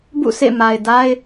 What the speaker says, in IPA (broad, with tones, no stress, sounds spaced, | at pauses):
b ṵ˦˨ s ḛ˦˨ m a˨ ɪ̯ d a˦ ɪ̯